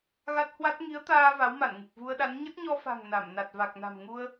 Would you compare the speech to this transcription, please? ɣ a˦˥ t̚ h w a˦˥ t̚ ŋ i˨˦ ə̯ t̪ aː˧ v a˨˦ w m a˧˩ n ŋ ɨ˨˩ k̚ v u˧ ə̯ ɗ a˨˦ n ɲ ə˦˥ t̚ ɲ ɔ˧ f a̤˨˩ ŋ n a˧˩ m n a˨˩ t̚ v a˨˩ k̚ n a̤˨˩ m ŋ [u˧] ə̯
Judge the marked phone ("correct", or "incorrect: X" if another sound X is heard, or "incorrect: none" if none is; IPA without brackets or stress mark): correct